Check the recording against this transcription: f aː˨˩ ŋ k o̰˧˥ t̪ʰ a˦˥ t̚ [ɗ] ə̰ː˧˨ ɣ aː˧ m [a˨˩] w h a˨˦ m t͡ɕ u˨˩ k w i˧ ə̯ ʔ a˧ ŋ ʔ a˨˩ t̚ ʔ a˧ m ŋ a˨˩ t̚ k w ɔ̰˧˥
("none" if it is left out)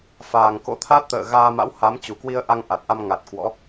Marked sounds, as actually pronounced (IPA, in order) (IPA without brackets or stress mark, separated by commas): t̪, a̰˧˥